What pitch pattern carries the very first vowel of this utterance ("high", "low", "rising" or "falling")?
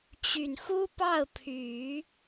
low